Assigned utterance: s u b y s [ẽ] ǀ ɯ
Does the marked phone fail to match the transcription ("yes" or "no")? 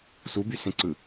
no